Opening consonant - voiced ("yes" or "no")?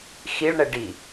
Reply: no